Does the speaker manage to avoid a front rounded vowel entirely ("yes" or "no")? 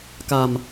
yes